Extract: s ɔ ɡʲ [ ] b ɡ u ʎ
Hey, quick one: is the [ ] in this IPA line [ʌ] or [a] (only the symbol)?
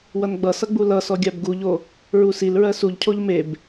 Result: a